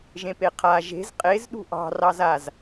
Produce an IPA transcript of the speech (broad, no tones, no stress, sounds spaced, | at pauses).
ʒ ẽ p e qʰ a ʒ e̤ z qʼ e z ɗ ṳ ʔ ɑ̤ r ɑ z a z